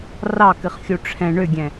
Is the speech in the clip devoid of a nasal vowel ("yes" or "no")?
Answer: no